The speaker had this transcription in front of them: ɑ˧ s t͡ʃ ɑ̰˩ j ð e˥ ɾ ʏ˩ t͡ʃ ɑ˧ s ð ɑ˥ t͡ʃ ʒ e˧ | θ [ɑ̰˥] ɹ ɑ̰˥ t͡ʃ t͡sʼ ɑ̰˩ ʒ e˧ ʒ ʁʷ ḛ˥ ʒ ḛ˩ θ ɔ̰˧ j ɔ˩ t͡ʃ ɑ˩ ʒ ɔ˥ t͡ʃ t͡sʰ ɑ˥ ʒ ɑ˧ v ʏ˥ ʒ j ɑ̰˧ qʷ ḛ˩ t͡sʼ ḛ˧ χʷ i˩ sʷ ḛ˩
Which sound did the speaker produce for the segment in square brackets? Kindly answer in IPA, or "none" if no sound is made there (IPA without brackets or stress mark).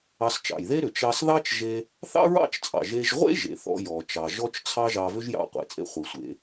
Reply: ɑ̰˥